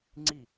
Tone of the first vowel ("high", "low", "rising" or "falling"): falling